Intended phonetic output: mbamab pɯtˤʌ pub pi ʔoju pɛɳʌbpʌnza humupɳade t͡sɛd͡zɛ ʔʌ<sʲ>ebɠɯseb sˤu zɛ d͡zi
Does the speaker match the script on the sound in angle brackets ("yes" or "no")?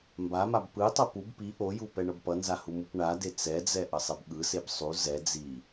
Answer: no